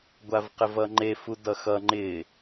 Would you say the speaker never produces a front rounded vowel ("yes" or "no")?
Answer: yes